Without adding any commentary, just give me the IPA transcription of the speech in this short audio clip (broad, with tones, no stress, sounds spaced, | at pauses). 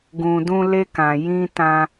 ɡ ũ˨ d ũ˧ l e˧ k ã˨ j ĩ˧ t ã˧